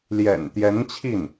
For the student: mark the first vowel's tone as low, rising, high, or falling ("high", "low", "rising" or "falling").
low